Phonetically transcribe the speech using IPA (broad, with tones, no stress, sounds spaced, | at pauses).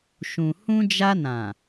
ʃ ũ˨ h ũ˧ d͡ʒ a˧ n ã˨